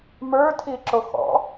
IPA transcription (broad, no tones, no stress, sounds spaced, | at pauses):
m ə˞ tʰ i ǁ o x ɔ̰